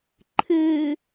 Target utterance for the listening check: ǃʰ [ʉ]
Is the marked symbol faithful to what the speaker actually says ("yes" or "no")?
no